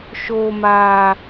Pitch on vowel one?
low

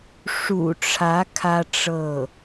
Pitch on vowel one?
low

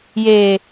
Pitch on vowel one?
low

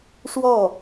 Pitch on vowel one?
falling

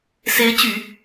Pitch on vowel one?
rising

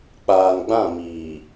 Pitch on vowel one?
low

